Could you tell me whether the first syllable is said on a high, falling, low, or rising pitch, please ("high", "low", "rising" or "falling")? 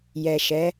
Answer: low